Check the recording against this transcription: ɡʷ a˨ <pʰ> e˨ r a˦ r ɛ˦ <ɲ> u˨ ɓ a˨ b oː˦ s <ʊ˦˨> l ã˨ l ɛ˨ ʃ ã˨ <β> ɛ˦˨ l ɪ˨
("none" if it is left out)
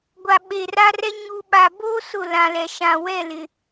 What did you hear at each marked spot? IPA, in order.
ɓ, ɲ, ʊ˦˨, w

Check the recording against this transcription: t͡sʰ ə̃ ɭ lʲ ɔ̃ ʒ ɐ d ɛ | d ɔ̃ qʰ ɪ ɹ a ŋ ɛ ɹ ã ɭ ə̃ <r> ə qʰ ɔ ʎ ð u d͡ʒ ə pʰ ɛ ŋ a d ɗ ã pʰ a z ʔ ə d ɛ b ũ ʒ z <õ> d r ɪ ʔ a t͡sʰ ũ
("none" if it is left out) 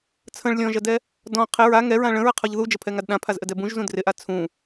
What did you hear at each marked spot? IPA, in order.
ɹ, ũ

